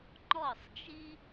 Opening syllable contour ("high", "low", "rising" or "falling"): falling